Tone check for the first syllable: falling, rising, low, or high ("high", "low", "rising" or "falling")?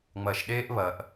low